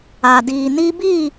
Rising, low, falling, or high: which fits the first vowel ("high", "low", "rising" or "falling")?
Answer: low